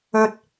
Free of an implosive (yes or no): yes